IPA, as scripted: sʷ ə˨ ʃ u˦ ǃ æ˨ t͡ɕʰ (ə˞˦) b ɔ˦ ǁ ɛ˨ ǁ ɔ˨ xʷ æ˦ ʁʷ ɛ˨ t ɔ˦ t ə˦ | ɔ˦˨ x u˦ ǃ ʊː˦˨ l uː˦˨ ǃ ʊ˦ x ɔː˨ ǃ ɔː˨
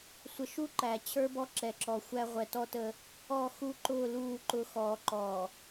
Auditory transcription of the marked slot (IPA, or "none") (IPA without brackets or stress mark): ə˞˦